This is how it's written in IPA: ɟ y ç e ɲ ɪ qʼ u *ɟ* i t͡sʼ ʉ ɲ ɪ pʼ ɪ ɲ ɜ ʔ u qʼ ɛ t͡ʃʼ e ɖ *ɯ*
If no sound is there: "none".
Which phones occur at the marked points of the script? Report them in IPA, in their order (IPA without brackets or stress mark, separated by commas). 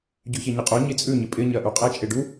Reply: ɲ, u